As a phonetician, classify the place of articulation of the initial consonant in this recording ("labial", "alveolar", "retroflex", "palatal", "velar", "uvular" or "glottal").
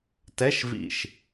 alveolar